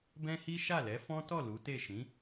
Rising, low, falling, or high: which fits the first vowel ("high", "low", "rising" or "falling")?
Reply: high